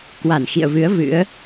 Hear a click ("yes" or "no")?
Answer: no